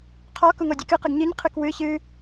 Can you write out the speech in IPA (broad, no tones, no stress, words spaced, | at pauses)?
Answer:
qʰɔ kuŋodʲɨkɨ qəɡɲɨɲ qʰɨkwɨ çɨ